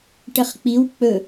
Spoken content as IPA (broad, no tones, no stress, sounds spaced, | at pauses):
ʈ ə χ k͡p i w k͡p ɵ